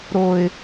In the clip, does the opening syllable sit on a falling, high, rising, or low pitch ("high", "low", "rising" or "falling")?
low